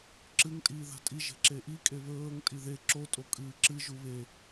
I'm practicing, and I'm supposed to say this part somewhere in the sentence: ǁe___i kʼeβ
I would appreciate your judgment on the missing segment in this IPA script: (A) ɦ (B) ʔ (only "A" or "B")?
B